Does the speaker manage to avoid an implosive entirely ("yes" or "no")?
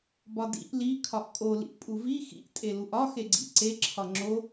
yes